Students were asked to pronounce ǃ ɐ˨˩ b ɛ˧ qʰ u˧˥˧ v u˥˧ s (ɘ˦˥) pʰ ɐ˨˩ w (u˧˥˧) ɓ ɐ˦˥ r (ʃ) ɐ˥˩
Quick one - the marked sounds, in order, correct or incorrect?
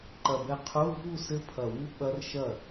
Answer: correct, incorrect, correct

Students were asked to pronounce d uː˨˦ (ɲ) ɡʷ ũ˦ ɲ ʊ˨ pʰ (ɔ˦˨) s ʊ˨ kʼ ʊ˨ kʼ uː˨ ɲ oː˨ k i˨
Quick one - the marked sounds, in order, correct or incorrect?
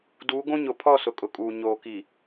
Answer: incorrect, correct

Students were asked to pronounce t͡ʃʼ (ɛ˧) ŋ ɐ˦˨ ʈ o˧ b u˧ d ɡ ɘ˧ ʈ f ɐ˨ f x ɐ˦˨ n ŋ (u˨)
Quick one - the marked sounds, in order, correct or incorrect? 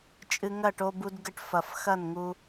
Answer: incorrect, incorrect

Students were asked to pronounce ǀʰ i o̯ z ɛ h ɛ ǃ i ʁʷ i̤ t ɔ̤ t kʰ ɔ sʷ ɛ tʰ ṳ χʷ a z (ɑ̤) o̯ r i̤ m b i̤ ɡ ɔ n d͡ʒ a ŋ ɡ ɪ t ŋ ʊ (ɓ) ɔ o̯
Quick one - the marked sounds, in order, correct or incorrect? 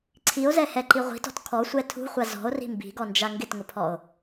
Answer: incorrect, incorrect

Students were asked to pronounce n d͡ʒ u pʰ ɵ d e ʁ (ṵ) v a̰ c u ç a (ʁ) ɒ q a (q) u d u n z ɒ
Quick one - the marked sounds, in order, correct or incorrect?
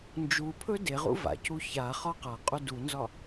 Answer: correct, incorrect, incorrect

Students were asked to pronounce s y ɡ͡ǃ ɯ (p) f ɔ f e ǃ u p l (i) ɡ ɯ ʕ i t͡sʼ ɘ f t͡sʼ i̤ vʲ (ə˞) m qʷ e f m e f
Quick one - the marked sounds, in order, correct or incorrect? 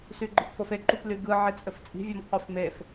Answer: correct, incorrect, incorrect

